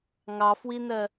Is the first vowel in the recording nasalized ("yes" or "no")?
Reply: no